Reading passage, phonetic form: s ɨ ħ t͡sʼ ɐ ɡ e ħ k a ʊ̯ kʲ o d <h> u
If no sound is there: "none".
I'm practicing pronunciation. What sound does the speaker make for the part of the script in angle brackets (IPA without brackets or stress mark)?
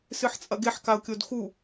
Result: x